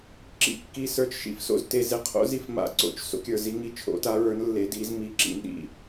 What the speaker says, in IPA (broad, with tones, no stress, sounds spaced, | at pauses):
ǁ ḭ˨˦ kː i˨ s ə˞˨ t͡ʃ ʃ ḭ˨˦ f s o̰˨ z t e˨ z e˨ qʰ o̰˨˦ z i˨˦ f m a̰˨ ǀ o̰˨ t͡ʃ s o̰˨˦ kʲ ə˞˨ z i˨˦ ŋ i˨˦ t͡ʃʰ o̰˨˦ t a˨˦ ɹ ə˞˨˦ n lː e˨˦ d i˨˦ z m i˨˦ ǁ ḭ˨ n ɗ ḭ˨